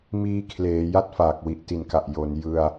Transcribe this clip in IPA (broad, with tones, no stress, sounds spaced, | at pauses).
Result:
m iː˧ kʰ l eː˩˦ j a˥˩ t̚ f aː˨˩ k̚ w i˨˩ ʔ t i˨˩ n k a˨˩ ʔ j o˩˦ n j ɯ˧ a̯